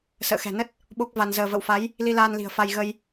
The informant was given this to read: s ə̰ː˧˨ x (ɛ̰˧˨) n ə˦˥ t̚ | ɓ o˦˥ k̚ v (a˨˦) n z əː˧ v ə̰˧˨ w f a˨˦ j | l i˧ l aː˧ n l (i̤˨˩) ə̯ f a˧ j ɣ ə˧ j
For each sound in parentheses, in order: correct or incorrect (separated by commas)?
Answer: incorrect, incorrect, correct